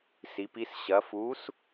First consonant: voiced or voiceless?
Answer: voiceless